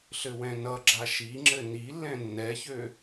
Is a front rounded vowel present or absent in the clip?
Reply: present